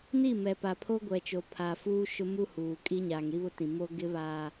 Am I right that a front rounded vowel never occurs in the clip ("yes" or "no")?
yes